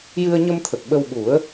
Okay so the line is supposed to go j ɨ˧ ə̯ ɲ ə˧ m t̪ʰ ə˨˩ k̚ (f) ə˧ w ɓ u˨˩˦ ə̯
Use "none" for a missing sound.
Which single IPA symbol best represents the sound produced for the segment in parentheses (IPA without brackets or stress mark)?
ɓ